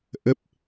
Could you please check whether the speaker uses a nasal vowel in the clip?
no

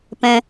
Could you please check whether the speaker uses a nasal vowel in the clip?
yes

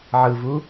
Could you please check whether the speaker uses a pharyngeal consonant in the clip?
yes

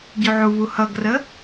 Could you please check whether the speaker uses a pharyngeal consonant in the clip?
yes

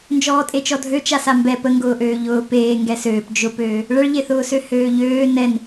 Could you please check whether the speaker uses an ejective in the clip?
yes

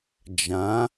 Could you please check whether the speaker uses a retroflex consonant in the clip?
no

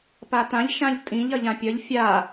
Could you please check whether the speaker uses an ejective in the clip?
yes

